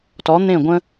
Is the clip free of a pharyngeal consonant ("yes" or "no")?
yes